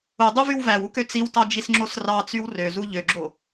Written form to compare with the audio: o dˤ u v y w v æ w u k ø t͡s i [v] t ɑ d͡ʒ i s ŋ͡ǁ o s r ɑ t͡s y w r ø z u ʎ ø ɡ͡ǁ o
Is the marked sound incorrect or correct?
incorrect